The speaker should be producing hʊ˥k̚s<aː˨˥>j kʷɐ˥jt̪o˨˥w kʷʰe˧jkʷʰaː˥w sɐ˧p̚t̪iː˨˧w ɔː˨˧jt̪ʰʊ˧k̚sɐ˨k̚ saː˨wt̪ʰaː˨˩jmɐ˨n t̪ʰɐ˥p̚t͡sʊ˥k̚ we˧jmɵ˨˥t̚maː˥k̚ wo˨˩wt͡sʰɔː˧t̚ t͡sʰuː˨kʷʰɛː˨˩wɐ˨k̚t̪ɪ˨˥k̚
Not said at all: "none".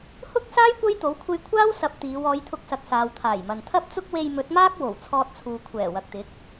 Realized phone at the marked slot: aː˥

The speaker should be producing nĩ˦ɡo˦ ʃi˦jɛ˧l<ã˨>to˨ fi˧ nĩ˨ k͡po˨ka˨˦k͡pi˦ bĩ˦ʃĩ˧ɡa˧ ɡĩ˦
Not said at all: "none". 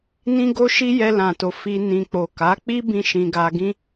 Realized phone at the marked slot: ã˨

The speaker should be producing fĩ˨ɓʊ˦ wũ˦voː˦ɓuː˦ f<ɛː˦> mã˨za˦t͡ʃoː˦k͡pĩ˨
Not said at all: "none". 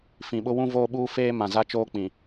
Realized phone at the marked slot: eː˦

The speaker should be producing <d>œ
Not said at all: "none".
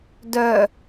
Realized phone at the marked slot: d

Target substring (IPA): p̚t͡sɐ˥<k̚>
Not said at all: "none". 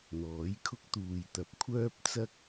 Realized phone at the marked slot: k̚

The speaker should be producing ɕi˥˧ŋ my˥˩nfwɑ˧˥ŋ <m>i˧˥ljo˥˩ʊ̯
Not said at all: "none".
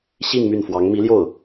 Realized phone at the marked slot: m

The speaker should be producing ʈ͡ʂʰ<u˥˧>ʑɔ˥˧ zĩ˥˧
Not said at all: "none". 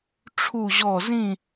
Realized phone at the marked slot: u˥˧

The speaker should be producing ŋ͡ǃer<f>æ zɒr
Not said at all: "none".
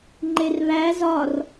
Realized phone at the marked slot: β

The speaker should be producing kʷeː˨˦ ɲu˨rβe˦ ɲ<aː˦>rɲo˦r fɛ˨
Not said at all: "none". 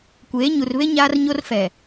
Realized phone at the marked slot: aː˦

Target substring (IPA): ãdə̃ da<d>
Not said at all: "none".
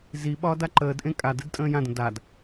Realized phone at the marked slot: d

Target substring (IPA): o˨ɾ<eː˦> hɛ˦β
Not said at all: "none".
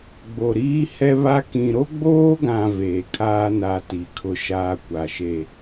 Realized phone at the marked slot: iː˦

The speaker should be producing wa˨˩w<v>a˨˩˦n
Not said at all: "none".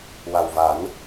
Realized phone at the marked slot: v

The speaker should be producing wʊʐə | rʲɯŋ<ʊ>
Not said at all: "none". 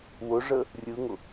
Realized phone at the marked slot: ʊ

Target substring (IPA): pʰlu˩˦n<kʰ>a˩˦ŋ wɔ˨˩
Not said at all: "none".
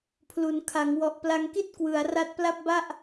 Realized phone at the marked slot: kʰ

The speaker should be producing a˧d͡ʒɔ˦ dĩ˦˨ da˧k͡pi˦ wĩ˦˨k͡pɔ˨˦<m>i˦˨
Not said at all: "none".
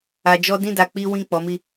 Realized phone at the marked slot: m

